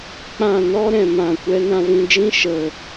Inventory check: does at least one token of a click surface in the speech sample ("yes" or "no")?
no